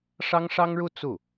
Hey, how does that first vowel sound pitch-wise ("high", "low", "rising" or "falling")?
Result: high